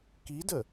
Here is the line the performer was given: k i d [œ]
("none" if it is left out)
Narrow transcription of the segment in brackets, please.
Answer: ə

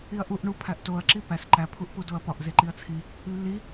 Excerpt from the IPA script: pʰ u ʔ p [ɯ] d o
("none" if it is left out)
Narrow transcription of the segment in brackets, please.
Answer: u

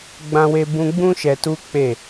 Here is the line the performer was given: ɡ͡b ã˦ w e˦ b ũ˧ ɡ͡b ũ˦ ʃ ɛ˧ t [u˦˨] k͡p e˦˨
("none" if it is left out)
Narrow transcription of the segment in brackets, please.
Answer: u˦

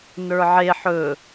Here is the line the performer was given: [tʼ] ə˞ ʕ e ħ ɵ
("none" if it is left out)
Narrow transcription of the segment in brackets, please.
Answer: n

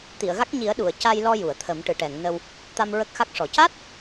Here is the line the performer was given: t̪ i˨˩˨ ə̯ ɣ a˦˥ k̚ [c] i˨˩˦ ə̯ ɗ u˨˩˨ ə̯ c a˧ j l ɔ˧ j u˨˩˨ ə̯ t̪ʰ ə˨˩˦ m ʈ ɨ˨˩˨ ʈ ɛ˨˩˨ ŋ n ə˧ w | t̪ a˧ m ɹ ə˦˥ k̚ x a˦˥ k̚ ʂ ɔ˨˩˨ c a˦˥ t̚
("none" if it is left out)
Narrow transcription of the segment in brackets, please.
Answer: ɲ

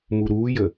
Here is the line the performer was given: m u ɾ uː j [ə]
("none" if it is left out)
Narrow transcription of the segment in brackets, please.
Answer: ə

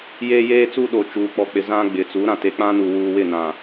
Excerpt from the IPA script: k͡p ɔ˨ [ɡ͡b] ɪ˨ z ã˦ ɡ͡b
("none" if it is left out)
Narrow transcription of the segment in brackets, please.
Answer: k͡p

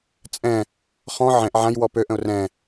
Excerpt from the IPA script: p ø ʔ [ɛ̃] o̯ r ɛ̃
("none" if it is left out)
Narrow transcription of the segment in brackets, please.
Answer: ə̃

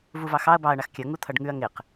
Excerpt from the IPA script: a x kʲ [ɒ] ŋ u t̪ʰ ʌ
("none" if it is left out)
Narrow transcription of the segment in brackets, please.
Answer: ʌ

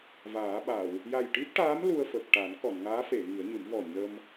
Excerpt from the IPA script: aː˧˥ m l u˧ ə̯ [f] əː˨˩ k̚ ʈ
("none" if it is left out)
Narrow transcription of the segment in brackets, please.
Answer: f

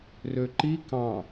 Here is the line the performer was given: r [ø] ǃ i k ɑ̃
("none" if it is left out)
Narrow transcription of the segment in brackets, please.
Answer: ø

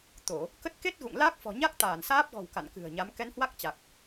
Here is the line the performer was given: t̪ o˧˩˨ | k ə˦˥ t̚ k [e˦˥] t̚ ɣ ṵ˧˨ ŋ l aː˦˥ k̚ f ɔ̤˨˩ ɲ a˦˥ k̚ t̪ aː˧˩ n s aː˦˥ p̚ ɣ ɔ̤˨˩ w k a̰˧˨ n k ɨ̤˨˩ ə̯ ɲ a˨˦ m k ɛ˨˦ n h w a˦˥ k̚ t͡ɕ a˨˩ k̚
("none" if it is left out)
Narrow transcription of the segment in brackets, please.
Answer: e˦˥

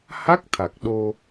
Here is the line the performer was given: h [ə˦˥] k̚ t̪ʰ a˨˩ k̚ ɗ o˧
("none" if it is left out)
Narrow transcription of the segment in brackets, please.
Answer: a˦˥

